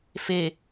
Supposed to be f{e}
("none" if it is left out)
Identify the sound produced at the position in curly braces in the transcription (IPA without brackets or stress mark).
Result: e